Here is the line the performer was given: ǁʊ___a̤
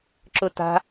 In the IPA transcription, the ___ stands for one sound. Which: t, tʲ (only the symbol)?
t